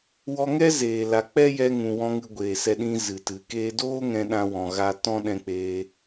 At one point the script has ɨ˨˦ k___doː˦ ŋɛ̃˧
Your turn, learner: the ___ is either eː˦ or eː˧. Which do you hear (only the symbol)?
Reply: eː˧